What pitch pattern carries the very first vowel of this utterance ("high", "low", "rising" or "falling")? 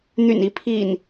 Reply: low